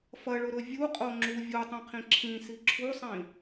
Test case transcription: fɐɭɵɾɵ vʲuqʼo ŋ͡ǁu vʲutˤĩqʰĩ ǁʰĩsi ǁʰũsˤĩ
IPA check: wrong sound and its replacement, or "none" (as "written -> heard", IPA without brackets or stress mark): ũ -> u